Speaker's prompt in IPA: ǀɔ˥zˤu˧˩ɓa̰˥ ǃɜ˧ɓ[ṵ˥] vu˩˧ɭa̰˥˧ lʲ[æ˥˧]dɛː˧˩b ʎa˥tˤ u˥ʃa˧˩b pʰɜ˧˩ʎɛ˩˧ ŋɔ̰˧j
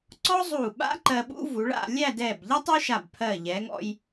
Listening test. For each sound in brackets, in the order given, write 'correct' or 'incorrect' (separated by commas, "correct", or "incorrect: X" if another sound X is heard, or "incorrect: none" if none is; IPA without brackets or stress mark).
correct, correct